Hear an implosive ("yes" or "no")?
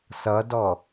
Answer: no